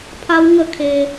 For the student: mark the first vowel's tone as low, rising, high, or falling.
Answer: high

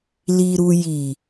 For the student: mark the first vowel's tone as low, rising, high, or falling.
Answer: low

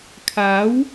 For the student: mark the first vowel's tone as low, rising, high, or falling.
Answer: rising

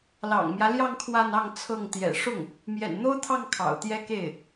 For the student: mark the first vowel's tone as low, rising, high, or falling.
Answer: low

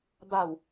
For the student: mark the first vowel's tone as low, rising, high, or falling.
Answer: low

